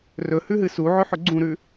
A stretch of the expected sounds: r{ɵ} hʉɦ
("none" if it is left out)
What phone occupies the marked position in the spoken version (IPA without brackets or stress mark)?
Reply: ɵ